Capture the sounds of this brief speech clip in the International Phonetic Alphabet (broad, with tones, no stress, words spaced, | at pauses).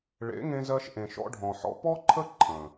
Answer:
ɭḛ˨˦ŋẽ˧zɜ˧ʃ ʔẽ˨ʃɔ̰˧ɖʱɔ̃˨ħɔ̰˧ pɔ˦ǃʰə˦ ǃʰə̃˨